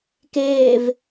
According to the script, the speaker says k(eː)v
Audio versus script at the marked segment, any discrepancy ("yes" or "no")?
no